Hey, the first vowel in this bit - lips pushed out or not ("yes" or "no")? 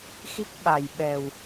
no